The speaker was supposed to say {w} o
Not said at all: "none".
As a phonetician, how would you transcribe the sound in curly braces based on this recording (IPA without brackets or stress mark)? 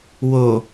w